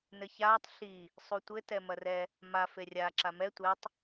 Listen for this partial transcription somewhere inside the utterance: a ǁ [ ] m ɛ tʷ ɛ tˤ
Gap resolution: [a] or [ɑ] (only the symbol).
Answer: a